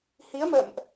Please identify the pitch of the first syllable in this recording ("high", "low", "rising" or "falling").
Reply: rising